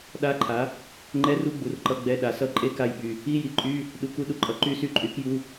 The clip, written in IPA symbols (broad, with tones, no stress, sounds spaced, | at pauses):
ɗ a˧˥˧ ǃʰ a˩˥ | ŋ͡ǃ ɛ˧˥˧ r u˧˥˧ ɡ͡b u˩˥ r ǃ ʌ˧˥˧ ɡ͡b ɛ˧˥˧ ɗ a˩˥ s ʌ˦˨ ǃʼ e˧˥˧ k a˦˨ j ɓ y˨ | i˧˥˧ j i˨ ǃʼ y˧˥˧ | ɗ u˩˥ k u˦˨ ɗ u˨ ǃʼ ʌ˨ ǃ y˦˨ s y˦˨ ǃʼ y˩˥ k j u˧˥˧